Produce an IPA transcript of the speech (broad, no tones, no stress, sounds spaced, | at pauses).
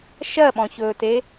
ʃ ɜ ɓ ɔ̃ ç ɵː t e